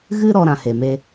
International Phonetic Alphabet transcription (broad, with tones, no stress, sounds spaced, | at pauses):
ɣ ɨ˦ ɾ ɔ˦ ɾ ã˧ h e˨ m e˦